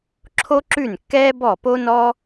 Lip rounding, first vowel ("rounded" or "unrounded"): rounded